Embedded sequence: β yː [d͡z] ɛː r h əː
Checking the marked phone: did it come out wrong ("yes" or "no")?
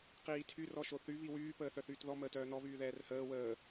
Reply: yes